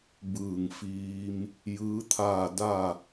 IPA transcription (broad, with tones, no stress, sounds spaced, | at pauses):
b ɯː˧˩ ŋ f iː˧ m | j ɯː˧˥ t̪ʰ aː˥˨ d a˥˨